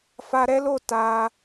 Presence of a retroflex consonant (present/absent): absent